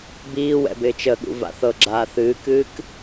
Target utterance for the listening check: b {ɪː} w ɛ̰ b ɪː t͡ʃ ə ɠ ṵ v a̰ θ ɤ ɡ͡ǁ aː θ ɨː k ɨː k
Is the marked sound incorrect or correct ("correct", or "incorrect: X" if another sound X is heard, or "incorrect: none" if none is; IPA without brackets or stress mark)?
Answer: incorrect: iː